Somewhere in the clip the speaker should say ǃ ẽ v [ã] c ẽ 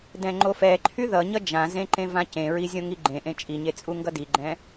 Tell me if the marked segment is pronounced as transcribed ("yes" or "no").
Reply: yes